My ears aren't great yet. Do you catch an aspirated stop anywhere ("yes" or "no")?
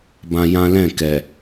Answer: no